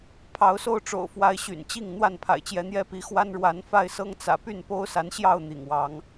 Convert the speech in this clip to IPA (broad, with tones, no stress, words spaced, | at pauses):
pʰɑ˨˦ʊ̯so˥˨ʊ̯ʈ͡ʂo̰˨˩ʊ̯ fwa˨˦ɪ̯ɕy̰˨˩nt͡ɕi˥˨ŋ n̪wa˥˨npʰa̰˨˩ɪ̯t͡ɕjɛ˨˦n̪jɛ˦ pi˨˦xwa˦n ɻwa˨˦nfa˥˨ɪ̯sɤ˦ŋ t͡sä̰˨˩py˥˨n po˦ʊ̯sa˨˦nɕjɑ˥˨ʊ̯ n̪ḭ˨˩ŋwɑ˨˦ŋ